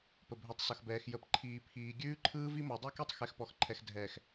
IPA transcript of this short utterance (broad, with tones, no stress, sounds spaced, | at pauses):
p ə˨ bʱ ʉ˨ tˤ s ʌ˨ x b ɛː˨ x j ə˨ p ǃʰ iː˨ pʰ iː˨ ɡʲ ʉː˦ ǃʰ ɯː˦ v i˦ m ɔ˨ dˤ ʉ˦˨ k e˦ tˤ x ɛ˨ x p ɔ˨ x ǃʰ ɛ˨ x dʱ ɛː˨ x